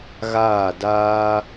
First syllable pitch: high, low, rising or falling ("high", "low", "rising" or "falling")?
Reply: falling